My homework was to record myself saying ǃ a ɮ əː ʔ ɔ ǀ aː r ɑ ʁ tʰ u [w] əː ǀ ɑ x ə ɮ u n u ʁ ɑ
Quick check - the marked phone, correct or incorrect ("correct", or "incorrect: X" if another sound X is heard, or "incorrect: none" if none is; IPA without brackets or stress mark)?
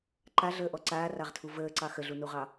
incorrect: v